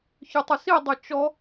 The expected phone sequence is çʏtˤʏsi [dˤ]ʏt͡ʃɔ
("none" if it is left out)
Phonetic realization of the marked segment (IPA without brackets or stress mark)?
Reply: dˤ